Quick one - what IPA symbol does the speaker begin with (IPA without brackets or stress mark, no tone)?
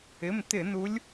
ɪ